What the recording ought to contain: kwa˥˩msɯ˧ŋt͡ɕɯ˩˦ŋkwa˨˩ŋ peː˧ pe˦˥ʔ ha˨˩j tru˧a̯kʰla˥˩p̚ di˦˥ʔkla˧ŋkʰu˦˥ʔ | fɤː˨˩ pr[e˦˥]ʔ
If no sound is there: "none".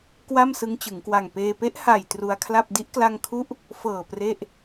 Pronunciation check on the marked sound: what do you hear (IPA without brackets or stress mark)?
e˥˩